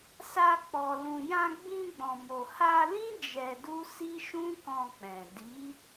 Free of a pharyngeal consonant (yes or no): yes